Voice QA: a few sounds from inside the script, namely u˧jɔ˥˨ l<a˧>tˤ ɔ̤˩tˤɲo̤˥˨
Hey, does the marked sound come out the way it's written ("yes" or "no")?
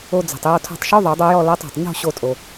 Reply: no